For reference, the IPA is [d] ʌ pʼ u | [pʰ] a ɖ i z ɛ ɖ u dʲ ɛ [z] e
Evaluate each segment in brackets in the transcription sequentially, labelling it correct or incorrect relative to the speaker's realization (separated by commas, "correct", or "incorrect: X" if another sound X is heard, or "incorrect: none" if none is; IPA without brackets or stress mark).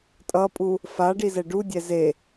incorrect: tʼ, incorrect: f, correct